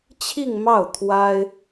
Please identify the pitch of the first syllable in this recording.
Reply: falling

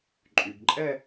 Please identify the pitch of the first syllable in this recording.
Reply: low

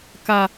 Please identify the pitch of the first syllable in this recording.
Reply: low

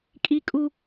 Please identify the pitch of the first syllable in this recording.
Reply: high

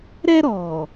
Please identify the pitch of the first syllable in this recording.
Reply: high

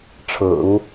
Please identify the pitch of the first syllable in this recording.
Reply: low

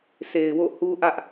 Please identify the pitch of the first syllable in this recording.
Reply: low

